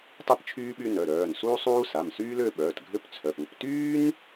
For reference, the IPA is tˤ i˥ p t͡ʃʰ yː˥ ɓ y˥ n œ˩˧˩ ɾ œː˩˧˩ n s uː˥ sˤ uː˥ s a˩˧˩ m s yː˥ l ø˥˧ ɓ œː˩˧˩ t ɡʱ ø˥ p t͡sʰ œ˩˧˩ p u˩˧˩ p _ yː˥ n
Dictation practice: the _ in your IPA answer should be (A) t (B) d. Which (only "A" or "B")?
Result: A